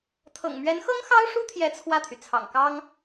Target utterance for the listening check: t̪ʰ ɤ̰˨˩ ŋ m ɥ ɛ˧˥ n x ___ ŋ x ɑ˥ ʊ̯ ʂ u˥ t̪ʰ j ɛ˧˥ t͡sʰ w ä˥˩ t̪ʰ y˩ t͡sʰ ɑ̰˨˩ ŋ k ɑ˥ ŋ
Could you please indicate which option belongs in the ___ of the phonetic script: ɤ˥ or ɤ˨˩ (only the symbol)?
ɤ˥